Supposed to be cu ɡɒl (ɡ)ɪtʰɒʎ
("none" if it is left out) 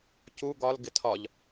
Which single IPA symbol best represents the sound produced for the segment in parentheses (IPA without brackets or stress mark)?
ɡ